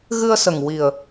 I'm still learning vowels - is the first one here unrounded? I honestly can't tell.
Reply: yes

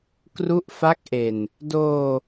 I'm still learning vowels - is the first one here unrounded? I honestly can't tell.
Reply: no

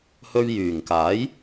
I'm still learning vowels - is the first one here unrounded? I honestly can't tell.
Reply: no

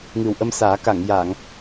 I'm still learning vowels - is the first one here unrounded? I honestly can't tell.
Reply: yes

